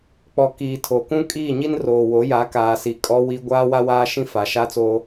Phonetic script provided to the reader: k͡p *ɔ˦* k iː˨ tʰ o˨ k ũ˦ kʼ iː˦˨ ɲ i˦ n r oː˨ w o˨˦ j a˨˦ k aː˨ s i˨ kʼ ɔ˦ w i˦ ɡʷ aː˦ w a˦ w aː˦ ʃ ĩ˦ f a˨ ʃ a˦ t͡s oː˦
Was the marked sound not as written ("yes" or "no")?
yes